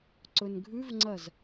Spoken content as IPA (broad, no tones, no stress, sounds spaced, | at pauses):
ǀ ɵ n ɡʱ ʉ v ŋ͡ǀ ɐ z